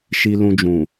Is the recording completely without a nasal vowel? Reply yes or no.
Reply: no